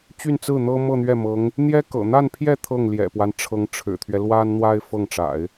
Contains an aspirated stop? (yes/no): yes